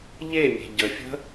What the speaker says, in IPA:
ʎ e mʲ e̤ ɟ ə fʲ ə̤

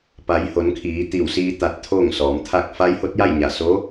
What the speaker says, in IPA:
p a˩˧ j h o˩˧ n kʰ iː˩˧ t̪ i˧˩ w s iː˧ t̪ a˧ t̚ t̪ʰ oː˥˨ ŋ s ɔː˩˧ m t̪ʰ a˥˨ k̚ f a˧˥ j h o˧˥ t̚ j a˥˨ j ɲ a˧˩ s o˧˥

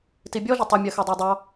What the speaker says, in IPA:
t i bʲ ɔ ʒ ɪ tˤ ʌ mʲ ɜ x ɜ dˤ æ dˤ ɑ

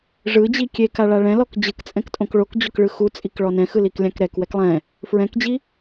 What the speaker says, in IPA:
ʐ ɯ d͡ʑ i kʲ e k a ɭ a ɭ ɛ̃ l ɔ k d͡ʑ ɯ k t͡sʼ ɛ̃ k tʼ õ k ɭ o k d͡ʑ o k ɭ ɯ x u t͡sʼ i k ɭ ɔ n ɛ̃ x ɯ l i k lʲ ã k ɾ ɛ k w ɛ k lˠ ɛ̃ | f ɹ ɛ̃ k d͡ʑ i

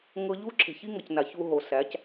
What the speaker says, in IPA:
ŋ ɤ˧ ʎ u˦ ǁʰ e̤˨ ç i˦ ŋ ɤ˨ c n a˨ ç u˧ ɦ o˨ s æ˨˦ c

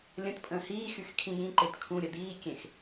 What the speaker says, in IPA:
lʲ ə̃ t pʼ ə̃ː h iː x y x kʰ ĩ j ĩ ǃ e t kʰ ũ ɾʲ ə d̪ iː kʲ ẽ x

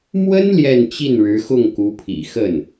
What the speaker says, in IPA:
m w ə˥ n l j ɛ˥˧ n t͡ɕ i˥˩ n ɻ ɻ̩˧˥ x ʊ˥˩ ŋ k u˧˥ pʰ ḭ˨˩ x ə˥˩ n

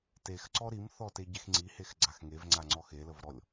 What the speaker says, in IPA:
t e x ǀ ɔ ɾ i m θ ɔ t e ɟ e x ŋ͡ǀ i h e x ɡ͡ǀ a x ŋ e v ŋ͡ǀ a ŋ͡ǀ ɔ x e l ə v ɾ ɔ lʲ

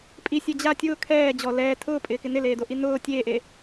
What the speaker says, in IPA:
pʼ i sʲ ɛ d͡ʑ a tʲ ʊː kʰ ɛː d͡ʑ ɔ l ɛː tʰ ʊː pʼ ɪː k ɪ n ɪ l eː d o ʔ i n ʊː tʲ eː ʔ e

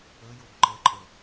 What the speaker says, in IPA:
ə j o ɡ ǃ ə ǃʼ ə

